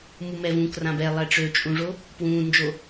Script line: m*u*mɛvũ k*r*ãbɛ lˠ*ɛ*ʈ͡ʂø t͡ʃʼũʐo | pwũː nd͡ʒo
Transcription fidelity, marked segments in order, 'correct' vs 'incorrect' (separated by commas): correct, correct, correct